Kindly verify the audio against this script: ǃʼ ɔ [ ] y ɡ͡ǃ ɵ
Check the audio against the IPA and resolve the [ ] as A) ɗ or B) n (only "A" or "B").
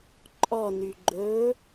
B